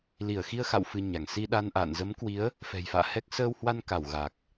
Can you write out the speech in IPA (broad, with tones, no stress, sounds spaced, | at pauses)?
l i˧˩ ə̯ x i˧ ə̯ x a̰˧˨ w f ɨ˧ ɲ a˧˩ ŋ s i˧ ɗ a˧ n ʔ a̰ː˧˨ n z ə˨˦ m k w i˨˦ ə̯ | f ɛ̤˨˩ j f a̰ː˧˨ h ɛ˦˥ k̚ s əː˧ w h w a˧ n k a˧˩ w ɣ a˨˩ k̚